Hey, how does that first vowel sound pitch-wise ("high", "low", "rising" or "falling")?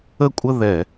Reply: falling